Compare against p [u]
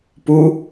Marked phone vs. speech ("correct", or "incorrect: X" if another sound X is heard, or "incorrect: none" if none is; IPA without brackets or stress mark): correct